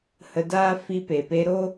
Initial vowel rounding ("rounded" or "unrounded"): unrounded